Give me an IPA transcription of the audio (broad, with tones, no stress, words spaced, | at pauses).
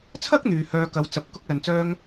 t͡sʰɐ˥k̚ n̪yː˨hœː˧ kɐ˨˧w t͡sɐ˨˥p̚ kʊ˥k̚lɐ˨nt͡sœː˥ŋ